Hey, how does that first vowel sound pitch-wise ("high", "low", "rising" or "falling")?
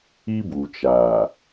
high